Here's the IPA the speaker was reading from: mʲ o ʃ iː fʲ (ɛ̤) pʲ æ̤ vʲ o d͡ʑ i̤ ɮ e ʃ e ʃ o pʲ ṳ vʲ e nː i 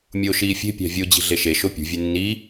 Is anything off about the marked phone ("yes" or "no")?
yes